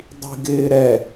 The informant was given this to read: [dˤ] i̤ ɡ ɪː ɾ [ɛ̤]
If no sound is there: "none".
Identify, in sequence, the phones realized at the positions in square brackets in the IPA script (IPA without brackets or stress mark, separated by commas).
dˤ, ɛ